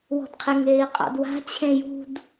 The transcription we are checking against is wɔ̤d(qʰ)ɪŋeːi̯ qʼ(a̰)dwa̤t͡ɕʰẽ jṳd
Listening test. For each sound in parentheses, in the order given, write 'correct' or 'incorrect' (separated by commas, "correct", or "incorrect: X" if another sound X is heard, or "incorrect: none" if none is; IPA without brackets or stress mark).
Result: correct, correct